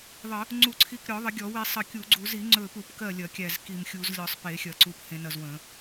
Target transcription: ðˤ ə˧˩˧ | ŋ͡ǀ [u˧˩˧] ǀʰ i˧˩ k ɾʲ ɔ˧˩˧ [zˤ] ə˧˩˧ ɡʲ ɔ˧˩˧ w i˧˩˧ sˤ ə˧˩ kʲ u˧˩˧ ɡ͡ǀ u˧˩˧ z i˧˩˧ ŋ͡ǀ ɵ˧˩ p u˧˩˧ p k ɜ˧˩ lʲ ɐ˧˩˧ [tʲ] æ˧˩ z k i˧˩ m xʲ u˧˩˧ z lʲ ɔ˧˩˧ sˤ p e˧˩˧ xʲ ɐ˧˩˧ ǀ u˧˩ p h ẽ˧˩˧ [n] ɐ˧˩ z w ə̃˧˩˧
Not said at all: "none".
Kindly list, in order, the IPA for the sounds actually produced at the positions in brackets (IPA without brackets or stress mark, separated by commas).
u˧˩˧, ðˤ, kʲ, n